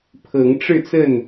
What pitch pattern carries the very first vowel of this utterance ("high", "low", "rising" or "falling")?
rising